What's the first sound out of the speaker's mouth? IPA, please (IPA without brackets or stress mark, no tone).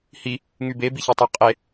h